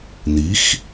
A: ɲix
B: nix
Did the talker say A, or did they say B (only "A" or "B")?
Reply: B